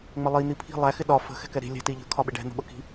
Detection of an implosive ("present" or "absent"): present